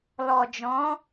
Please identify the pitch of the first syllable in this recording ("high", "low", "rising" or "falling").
low